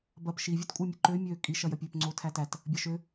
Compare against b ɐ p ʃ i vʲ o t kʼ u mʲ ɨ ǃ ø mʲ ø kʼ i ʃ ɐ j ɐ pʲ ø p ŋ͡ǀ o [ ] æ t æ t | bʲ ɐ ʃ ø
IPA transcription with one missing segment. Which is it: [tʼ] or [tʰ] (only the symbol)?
tʰ